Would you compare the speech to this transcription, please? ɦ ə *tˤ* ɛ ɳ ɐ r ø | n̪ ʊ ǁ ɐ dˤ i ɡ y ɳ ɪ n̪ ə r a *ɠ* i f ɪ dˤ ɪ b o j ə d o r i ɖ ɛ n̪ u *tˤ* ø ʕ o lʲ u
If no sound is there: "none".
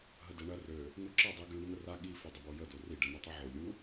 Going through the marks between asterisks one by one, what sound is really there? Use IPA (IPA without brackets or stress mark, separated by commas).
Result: d, ɠ, tˤ